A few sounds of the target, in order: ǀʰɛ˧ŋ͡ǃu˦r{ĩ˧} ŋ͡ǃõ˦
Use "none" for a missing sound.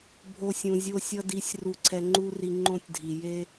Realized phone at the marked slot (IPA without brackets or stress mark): i˧